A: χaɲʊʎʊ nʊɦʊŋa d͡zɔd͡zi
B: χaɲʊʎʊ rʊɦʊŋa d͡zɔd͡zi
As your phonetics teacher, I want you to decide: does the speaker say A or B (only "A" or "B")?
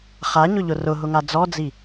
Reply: B